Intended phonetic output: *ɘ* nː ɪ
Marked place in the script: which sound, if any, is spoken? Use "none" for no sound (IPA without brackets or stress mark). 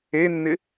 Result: e